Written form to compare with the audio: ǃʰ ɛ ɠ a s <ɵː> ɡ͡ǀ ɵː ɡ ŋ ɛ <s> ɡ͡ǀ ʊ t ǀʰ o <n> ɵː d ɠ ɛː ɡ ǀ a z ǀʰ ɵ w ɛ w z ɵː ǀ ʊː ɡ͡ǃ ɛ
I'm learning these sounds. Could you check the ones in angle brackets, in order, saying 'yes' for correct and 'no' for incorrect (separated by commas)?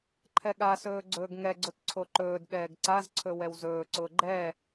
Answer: yes, no, no